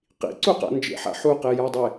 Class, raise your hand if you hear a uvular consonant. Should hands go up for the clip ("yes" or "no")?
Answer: yes